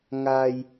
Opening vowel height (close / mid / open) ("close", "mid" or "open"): open